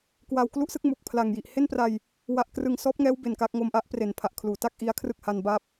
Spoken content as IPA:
k w a˧ w k l u˥˩ ʔ s ɯ˥˩ k̚ m u˨˩ k̚ pʰ l a˨˩ ŋ j i˨˩ ʔ h e˥˩ n p r a˧ j | w a˨˩ ʔ k r ɯ˨˩ ŋ s ɔː˦˥ p̚ ŋ ɛː˦˥ w b e˨˩ n k a˥˩ k̚ ŋ o˧ m ʔ a˦˥ ʔ p r e˩˦ n pʰ a˨˩ ʔ kʰ l uː˩˦ t a˥˩ k̚ ʔ i˦˥ a̯ kʰ r ɯ˥˩ k̚ h a˧ n b a˦˥ p̚

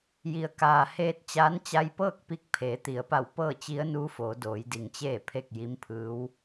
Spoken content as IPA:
j i˩˧ ə̯ k aː˩ h eː˧ t̚ t͡ɕ aː˧˥ n t͡ɕ a˧ j p ɤː˥˨ k̚ p i˧˥ k̚ pʰ eː˩˧ t̪ i˩˧ ə̯ p a˧˩ w p ɤː˥˨ t͡ɕ i˧˥ ə̯ n uː˧˥ f oː˩˧ d oː˩˧ j d i˩ ŋ t͡ɕ eː˥˨ pʰ e˥˨ k̚ j i˧˥ m pʰ ɯː˧˥ w

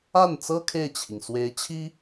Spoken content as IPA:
a˥˩ n t͡s ɤ˥ kʰ e˥˩ ɪ̯ t͡ɕʰ i˩ ŋ s w e˧˥ ɪ̯ t͡ɕʰ i˥

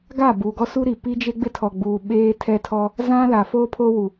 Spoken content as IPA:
ɡ a˦˨ b uː˨ ɡ ɔ˦ s u˦ ɾ i˨ p i˦ d͡ʒ e˦ ɡ͡b ɪ˦ tʰ ɔ˨ ɡ͡b uː˨ ɓ eː˦ tʰ ɛ˦ tʰ ɔ˦ | z ã˦ l a˨ f o˦ pʰ o˦ w u˨

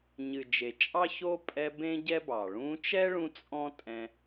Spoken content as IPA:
ɲ ɨ˨ d͡ʒ e˨ t͡ʃʼ ɑ˦ ç o˦ pʼ ɛ˧ b ẽ˦ ɟ ɛ˦ b ɑ˨ ɭ ũ˧ t͡ʃ ɛ˦ ɭ ũ˧ t͡sʼ ɔ̃˦ tʼ ɛ̃˧

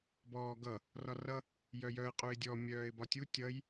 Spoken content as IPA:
b ɔː ɡ ʌ | r ɒ r ʌ | j œ j œ ə̯ qʼ u ɪ̯ dʲ ɔ mʲ œː ɪ̯ b ɒ tʲ u tʲ ʌ j

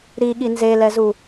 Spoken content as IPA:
ɾ i ɠ i n z e l ɛ z u

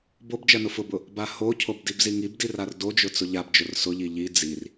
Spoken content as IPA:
b o b d͡ʒ ɜ n ʊ f ʊ b ʊ | b a h o cʰ o b d i b z i ŋ i b d i r a r d o d͡ʒ ʊ t͡s ʊ ʎ a b d͡ʒ ʊ r s ʊ ʎ i ʎ i d͡z i r

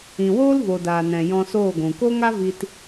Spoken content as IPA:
ĩ˨ w oː˦ l v o˨ d aː˨ n ɛ̃˨ j ɔ̃˧ s oː˦˨ ɡʷ ũ˨ k o˦ ŋ a˦ v i˧ t

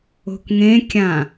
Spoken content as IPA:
o̤ k ŋ ẽ kʲ ã

